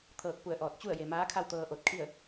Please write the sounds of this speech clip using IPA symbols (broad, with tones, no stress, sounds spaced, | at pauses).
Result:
t̪ʰ ɤː˧˩ k̚ p u˧˩ ə̯ ʔ ɔː˧˩ t̚ t͡ɕ u˥˨ ə̯ j e˩ m aː˧˥ kʰ a˥˨ w t̪ ɤː˧ ʔ o˧ t̚ kʰ i˥˨ ə̯